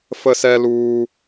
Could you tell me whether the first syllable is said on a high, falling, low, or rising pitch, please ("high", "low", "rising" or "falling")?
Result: high